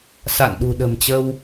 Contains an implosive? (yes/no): yes